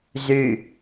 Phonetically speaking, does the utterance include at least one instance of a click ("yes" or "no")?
no